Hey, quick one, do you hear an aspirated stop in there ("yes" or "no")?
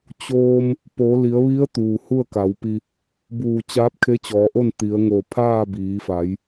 yes